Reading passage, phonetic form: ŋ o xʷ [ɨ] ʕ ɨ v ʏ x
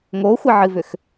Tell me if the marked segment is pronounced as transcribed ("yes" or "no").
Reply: no